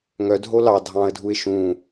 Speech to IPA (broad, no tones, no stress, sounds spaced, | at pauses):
ŋ œ dʱ o l ɑ dʱ ɑ̃ ə̯ dʱ u ɪ̯ ʃ ũ